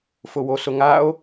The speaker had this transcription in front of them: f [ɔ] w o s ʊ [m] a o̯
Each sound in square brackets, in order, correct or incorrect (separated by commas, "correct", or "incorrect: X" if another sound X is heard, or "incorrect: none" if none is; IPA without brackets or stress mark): incorrect: ʊ, incorrect: ŋ